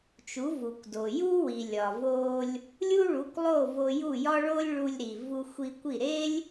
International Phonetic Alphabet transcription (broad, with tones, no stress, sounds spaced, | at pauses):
t͡ʃ u˩˥ v u˩ kʷ d o˩ j u˥ w i˩ lʲ ɒ˩ v o˧ lʲ | lʲ u˥ ɭ u˩˥ kʷ lˠ o˥˩ v o˧ j u˥˩ j ɒ˥ ɭ o˥ lʲ ɭ u˧ lʲ ɾ i˩ v u˧ xʷ i˧ kʷ i˥˩ ɾ e˥ lʲ